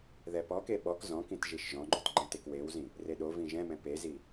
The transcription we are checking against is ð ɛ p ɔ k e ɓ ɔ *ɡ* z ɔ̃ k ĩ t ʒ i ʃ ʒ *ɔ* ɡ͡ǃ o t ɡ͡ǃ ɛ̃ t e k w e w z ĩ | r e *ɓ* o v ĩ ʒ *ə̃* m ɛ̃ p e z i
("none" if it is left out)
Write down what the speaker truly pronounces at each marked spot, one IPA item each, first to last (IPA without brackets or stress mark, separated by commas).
k, ɔ̃, ɗ, ɛ̃